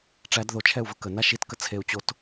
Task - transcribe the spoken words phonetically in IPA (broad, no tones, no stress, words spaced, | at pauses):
ʈ͡ʂæd ðot͡ʃʰɛu̯və kəna ʃitkə t͡sʰeu̯t͡ɕot